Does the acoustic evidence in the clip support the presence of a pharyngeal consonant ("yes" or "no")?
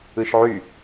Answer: yes